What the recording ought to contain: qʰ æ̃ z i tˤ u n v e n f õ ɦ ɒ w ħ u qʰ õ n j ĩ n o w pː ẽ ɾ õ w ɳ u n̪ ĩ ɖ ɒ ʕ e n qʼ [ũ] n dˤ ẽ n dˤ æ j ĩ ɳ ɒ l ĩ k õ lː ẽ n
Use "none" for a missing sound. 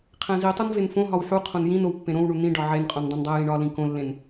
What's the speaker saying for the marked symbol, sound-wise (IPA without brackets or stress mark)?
õ